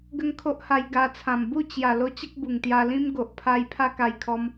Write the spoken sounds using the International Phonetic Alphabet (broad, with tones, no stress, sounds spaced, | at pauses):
ɡ ə˦ ŋ kʰ o˦ ʔ h a˧ j ɡ a˧ t͡sʰ ã˨˩ m b u˥˧ t͡ɕ j a˨˩ l o˦ t͡ɕ ə˦ k̚ b u˨˩ ŋ t̪ j a˧ l ĩ˦ m ɡ o˨ ʔ pʰ a˧ j pʰ a˦ k a˧ j kʰ ɔ˧ m